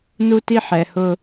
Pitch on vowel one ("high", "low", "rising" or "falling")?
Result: high